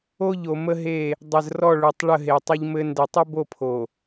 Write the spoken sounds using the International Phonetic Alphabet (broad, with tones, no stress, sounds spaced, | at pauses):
o˦ ʎ o˨ m ə˦ ɦ e˦˨ | dˤ ə˨ z r ɔ˦˨ ɭ u˨ tˤ ɭ ə˦˨ ɦ e˨ tˤ ə˦ ʎ m ɘ˦ n d ɘ˨ tˤ ə˦ b o˦˨ pʰ o˨